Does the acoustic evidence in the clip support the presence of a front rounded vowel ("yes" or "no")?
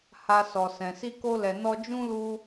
no